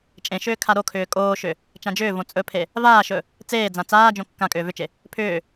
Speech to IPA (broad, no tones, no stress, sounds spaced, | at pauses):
t͡ʃʼ ẽ ʃ ʏː kʰ a ɾ o kʰ ʏː kʼ oː ʃ ʏ | t͡ʃ ã d͡ʒ ʏː v õ t͡sʼ ɵ pʰ e | v aː ʃ ɵ | t͡s eː d͡z ã t͡s aː d͡ʒ õ kː ã kʼ ʏː v ʏ t͡ʃ e | pʰ ʏː